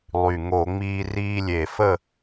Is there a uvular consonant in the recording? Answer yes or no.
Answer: no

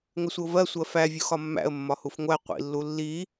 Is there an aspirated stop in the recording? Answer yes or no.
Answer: no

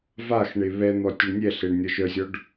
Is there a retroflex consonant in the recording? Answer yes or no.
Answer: yes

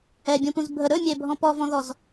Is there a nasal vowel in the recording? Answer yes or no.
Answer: yes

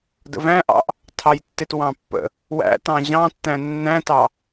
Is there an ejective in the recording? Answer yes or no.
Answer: no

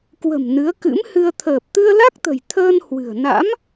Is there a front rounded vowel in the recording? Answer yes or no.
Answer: no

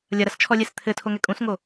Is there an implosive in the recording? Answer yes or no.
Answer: no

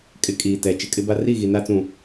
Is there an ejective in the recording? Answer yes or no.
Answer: yes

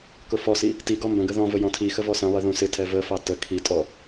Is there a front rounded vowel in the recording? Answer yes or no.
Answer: no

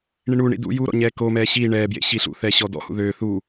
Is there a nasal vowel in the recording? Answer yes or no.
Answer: no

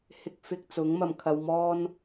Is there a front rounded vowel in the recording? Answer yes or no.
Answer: no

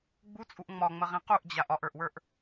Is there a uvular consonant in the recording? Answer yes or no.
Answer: yes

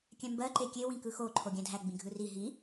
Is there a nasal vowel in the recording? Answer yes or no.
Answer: yes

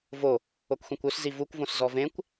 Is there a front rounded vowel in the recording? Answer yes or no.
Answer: yes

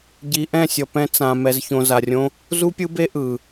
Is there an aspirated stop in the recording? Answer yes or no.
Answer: no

